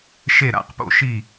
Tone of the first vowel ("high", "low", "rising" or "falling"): falling